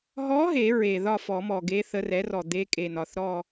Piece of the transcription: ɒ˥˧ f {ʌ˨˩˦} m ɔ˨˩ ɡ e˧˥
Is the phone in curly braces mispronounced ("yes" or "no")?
yes